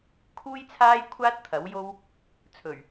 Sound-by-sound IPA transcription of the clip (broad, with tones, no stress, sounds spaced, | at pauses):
kʰ uː˥ j t͡sʰ aː˥ j kʷʰ aː˥ t̚ t̪ʰ ɐ˨˥ w j o˥ w | t͡sʰ ɵ˨˩ ɥ